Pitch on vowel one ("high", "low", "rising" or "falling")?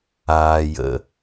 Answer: low